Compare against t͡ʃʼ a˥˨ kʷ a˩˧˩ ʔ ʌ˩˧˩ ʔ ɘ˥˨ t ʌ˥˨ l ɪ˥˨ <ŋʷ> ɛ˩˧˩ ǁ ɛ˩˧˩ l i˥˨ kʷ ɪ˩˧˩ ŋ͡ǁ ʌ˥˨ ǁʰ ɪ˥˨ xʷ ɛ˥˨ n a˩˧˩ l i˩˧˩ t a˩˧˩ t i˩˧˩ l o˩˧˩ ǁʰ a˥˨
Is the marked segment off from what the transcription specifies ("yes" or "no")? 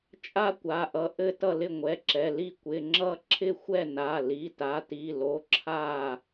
no